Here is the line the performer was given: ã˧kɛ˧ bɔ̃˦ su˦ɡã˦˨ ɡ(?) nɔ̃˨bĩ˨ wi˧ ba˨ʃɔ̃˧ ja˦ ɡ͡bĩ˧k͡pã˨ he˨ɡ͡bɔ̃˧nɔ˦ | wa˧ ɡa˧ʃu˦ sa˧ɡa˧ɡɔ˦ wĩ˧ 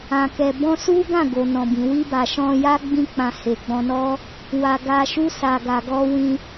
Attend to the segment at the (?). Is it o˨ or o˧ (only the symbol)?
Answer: o˨